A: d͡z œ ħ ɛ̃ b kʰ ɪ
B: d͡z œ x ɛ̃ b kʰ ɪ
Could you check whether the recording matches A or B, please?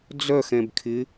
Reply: B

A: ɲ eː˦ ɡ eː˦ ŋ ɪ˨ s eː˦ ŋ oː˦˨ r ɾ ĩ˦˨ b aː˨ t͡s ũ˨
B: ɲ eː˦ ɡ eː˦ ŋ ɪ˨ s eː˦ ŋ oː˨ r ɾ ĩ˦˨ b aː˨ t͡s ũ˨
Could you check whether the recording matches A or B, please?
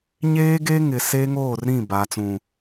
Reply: A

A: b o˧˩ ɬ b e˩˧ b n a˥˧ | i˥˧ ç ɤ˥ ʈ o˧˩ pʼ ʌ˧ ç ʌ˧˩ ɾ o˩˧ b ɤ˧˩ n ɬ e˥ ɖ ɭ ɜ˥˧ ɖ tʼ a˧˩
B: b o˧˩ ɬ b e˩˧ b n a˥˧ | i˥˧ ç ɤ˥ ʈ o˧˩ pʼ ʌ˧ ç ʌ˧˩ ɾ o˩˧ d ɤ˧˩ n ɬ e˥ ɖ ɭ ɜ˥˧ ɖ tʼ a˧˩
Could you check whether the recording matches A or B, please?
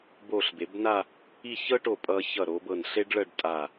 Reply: A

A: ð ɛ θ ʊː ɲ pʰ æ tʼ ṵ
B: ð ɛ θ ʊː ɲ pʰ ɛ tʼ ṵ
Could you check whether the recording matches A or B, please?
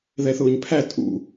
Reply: A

